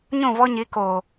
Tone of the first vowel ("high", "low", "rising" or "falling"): falling